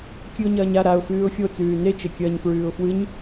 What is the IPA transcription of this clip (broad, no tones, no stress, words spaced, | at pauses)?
kʲɨʊ̯ɲɐːɲa ɾaʊ̯fʉːʊ̯ xʲot͡sʉː net͡ʃekʲɐːɲ fɹʉːʊ̯fwɨɲ